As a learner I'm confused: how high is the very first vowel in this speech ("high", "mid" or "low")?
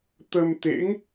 mid